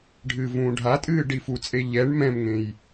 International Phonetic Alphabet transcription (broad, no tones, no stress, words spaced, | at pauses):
ɖʱɨːvũːɖʱatʼɨː ɖifut͡sʼe ʎɛɳ mɛ̃mŋẽj